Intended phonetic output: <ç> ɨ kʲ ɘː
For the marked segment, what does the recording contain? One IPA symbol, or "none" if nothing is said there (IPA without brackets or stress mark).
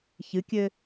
ç